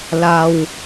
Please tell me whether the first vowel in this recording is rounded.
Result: no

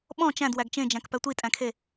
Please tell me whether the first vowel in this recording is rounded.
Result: yes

